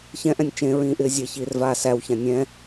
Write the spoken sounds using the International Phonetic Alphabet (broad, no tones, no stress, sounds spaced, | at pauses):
ç ɛ̃ ʔ ɛ̃ nʲ t͡ʃ ẽ ɹ ĩː ʔ ɪː zʲ ɛ ç iː r v aː s æ w ç ã nʲ ɛ̃